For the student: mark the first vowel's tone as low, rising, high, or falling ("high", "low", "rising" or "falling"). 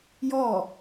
falling